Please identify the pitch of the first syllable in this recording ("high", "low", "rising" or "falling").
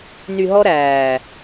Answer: low